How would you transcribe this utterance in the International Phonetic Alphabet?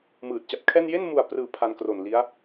mɯː˨˩t̚ t͡ɕa˨˩p̚kʰɛː˥˩n je˥˩nmu˨˩a̯prɯː˩˦ pʰa˧nkro˨˩nli˦˥a̯

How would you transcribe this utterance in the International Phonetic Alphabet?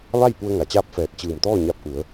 ʋa˥˨jpu˧ə̯ ŋa˩t͡ɕaː˥˨p̚fɛː˧˩t̚ t͡ɕɯː˧˩mt̪ɔː˥˨ɲa˧p̚ ʔu˩˧ə̯

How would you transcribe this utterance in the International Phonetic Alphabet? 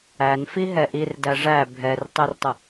ænfiɦɛ ʔirdæ ʐæ bʱɛrtˤertˤə

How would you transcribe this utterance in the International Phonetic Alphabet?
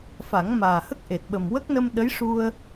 fa˨˩˦ŋmaː˨˩hə˦˥k̚ ʔe˨˩t̚ɓə˨˩m wə˦˥k̚nə˧m ɗə˧˥jʂu˧ə̯

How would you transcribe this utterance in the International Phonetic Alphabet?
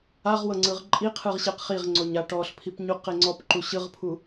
aʁwɤ ŋ͡ǀɯʁǃʼiqʰɯʁ ɕeqχiʁŋ͡ǀoɲ aʈɔɬpʰip ɲuqeŋ͡ǀɔpǃu ɕɯʁpʰu

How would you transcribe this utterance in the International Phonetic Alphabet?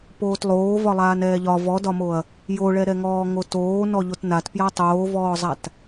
poːtlˠoːvɒlˠaːn ɛːʎɒ vɔdɒmoɐ̯ | joɭɛɾɛŋɔː ŋotoː nɔʎotnat pjatˤoːvɔːzˤat

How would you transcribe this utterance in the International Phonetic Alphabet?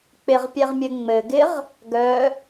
k͡pɪʁpʲɛʁmʲɘ ŋ͡mɘɡɪʁ | ɡœ

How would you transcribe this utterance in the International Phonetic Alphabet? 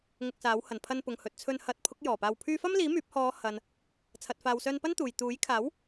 ŋʊ˧k̚saː˨˥w hɐ˨˩npʰɐ˧n pʊ˨ŋhɵ˨t̚t͡sʰɵ˧n hɐ˨˥t̚pʰʊ˨˥k̚ jɔː˨˩paː˧w pʰyː˧fɐ˥mliː˨˥ myː˨˥p̚ hɔː˨˧ hɐ˨n | t͡sʰɐ˨t̚faː˨wsœː˧n pɐ˥n t̪uː˨j t̪uː˨˥jkʰaː˨˥w

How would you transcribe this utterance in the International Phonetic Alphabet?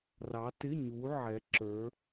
rɑ˨˦tɪ˧˥˧ɲu˨˦ ʕɛ˨˦ǁə˞˨˦

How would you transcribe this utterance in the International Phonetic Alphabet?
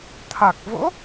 t̪ʰa˨˩k̚vo̰˧˥

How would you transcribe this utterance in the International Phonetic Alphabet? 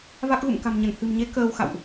va˦˥k̚ɣṵ˧˨m ka̤˨˩mɲə˧˩nhɨ̤˨˩mɲe˨˦ kəː˧w xa̰˧˨wʔ

